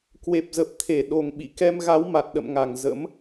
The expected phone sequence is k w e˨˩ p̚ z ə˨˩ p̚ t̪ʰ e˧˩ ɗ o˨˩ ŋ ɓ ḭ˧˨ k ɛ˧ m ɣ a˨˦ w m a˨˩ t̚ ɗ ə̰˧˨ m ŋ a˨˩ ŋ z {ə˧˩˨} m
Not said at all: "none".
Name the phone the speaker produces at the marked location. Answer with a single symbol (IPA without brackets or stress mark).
ə̰˧˥